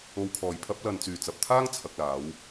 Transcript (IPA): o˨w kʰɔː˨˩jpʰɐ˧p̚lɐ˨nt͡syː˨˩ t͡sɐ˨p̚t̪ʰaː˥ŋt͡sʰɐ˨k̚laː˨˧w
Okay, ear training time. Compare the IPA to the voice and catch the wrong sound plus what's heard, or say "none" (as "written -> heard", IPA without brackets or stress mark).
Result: none